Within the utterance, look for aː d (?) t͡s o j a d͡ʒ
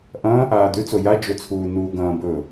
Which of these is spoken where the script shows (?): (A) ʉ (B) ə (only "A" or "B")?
A